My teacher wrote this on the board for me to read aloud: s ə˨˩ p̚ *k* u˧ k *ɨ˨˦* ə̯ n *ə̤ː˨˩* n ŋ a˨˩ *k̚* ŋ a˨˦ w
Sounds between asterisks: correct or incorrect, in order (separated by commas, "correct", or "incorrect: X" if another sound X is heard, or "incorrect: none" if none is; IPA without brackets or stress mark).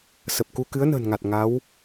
correct, correct, correct, incorrect: t̚